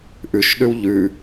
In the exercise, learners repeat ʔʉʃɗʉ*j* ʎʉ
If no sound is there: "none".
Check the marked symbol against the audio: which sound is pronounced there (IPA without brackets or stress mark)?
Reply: w